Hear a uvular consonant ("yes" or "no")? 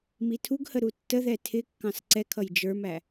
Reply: no